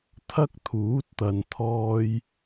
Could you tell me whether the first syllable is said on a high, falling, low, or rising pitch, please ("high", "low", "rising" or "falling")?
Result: high